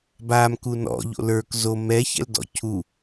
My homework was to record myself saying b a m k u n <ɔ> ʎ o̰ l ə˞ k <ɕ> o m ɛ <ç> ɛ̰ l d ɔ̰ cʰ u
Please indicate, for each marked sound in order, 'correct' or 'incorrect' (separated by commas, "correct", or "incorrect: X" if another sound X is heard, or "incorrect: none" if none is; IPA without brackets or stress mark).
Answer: incorrect: ɔ̰, incorrect: z, correct